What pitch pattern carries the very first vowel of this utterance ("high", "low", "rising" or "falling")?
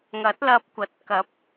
rising